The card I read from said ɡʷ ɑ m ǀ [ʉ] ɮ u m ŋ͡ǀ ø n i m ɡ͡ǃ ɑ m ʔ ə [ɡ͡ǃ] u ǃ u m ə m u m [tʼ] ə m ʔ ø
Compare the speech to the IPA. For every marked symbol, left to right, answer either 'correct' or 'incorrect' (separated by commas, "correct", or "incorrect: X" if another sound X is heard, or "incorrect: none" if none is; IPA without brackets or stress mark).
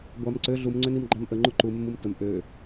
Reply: incorrect: ø, incorrect: ŋ͡ǃ, incorrect: t